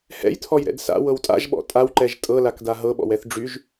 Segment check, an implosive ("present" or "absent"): present